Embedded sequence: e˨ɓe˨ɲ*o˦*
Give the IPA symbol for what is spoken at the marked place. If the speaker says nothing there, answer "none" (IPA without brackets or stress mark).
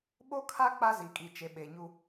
u˦